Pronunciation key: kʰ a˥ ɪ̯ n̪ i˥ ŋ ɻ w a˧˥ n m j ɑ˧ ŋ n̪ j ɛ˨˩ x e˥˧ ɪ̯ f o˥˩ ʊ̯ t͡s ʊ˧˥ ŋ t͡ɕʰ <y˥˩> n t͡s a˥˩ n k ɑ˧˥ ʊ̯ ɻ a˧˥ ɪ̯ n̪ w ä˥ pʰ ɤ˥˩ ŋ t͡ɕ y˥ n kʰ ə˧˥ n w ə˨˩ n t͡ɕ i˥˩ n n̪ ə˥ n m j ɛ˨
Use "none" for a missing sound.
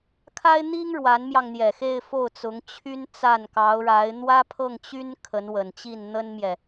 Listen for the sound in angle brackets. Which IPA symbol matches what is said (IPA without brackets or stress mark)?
y˥